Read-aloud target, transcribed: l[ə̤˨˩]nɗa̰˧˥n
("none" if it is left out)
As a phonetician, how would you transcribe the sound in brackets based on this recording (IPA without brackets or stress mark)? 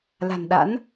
a̤˨˩